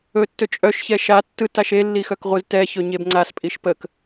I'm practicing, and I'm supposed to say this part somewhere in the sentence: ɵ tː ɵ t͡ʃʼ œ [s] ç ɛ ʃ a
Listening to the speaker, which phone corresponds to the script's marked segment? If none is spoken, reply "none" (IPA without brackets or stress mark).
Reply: ʃ